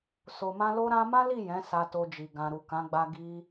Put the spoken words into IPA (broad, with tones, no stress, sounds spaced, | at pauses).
s o˧ m ã˦ l o˦ ɾ ã˦ m ã˦ l i˦˨ j ɛ̃˨˦ s a˧ t o˧ d͡ʒ i˨ ɡ ã˨ ɾ u˨ k ã˨˦ ɡ͡b a˧ ɡ i˧